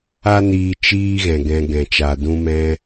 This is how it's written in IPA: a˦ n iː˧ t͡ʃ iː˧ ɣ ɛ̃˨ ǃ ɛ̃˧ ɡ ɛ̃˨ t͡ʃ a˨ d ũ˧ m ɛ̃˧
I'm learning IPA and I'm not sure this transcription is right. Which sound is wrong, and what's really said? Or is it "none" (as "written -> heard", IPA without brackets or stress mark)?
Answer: ǃ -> ɡ